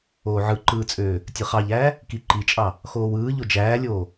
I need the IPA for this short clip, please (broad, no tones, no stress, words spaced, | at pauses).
oːʕɯǃɯːt͡sʼøː | tʲɯχɑʎæː | kiǃit͡ʃʼɑ | xoːwɯː ʎod͡ʒæːlʲoː